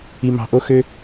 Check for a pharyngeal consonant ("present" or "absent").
absent